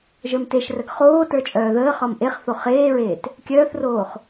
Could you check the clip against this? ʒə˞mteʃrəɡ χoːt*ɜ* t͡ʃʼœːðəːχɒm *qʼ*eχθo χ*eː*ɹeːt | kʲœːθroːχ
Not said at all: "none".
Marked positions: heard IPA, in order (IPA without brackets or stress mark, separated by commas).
ə˞, ʔ, eː